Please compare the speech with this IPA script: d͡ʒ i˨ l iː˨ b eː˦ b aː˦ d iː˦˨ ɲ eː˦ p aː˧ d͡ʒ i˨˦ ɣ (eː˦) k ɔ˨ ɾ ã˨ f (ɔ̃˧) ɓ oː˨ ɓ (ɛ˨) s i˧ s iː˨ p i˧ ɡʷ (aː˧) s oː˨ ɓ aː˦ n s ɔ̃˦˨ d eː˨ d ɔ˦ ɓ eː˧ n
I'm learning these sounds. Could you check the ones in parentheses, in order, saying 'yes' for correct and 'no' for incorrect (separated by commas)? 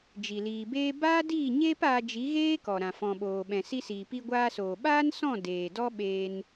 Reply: yes, no, no, yes